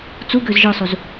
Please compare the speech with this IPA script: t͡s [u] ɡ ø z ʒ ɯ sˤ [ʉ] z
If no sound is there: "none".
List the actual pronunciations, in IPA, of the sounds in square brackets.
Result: u, u

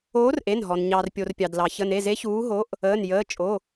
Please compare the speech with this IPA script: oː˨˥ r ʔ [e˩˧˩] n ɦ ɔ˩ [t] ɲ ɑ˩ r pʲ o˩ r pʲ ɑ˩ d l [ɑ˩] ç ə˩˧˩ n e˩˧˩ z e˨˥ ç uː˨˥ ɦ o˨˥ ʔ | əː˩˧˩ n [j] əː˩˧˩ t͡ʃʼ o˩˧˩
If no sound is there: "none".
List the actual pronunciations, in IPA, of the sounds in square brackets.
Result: e˩˧˩, n, ɑ˩, j

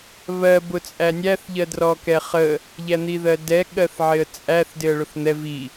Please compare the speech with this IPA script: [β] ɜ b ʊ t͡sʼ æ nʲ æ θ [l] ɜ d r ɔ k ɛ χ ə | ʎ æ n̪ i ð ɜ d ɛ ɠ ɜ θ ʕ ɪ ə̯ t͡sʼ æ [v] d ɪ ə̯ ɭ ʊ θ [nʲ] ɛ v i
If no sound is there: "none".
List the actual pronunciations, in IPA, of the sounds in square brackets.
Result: β, ʎ, θ, n̪

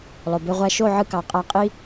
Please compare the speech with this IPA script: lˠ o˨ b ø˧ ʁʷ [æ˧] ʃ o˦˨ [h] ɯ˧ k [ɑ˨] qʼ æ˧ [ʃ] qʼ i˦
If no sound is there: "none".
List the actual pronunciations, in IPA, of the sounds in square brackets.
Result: æ˦, ʕ, ɑ˨, none

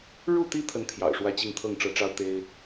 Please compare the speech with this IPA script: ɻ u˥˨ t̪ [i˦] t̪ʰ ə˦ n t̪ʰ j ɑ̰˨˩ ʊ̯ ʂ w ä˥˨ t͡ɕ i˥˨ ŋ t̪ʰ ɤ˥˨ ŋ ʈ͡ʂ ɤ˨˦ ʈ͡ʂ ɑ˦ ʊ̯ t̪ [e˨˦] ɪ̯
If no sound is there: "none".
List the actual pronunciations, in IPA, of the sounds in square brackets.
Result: i˦, e˦

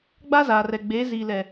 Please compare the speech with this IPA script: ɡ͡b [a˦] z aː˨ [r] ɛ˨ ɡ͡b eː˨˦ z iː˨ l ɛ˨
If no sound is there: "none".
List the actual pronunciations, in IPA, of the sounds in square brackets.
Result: a˦, r

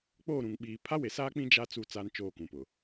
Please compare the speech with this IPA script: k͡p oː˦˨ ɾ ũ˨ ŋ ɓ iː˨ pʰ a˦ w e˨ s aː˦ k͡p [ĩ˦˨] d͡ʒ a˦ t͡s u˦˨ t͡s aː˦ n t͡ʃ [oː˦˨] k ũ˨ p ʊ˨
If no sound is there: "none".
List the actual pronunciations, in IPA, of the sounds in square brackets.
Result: ĩ˦, oː˦˨

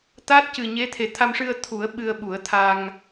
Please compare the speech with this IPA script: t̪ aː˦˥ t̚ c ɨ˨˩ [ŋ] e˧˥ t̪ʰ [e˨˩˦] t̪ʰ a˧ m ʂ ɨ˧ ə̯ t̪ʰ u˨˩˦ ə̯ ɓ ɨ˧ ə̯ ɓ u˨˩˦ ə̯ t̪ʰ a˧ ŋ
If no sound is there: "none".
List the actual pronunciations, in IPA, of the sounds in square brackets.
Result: ɲ, e˨˩

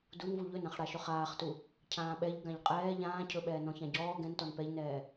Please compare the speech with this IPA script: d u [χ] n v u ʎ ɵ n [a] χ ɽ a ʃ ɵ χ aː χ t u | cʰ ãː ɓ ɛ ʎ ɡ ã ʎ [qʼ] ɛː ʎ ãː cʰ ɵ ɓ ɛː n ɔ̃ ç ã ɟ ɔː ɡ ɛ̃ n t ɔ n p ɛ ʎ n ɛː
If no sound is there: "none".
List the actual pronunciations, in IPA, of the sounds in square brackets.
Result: none, ã, qʼ

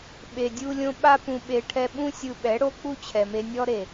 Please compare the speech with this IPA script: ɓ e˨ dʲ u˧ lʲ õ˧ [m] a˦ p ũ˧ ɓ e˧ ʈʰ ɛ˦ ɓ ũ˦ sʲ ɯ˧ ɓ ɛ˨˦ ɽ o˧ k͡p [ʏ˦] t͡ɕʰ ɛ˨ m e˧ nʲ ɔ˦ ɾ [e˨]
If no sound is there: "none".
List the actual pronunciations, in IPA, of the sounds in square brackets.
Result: ɓ, u˦, e˨

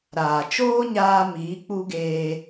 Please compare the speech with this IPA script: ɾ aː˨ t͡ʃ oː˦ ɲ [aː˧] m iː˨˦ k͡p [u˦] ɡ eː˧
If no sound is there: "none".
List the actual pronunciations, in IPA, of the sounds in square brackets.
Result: aː˧, u˦

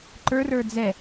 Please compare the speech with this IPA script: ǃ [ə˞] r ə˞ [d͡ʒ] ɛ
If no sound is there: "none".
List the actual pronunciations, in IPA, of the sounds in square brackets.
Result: ə˞, d͡z

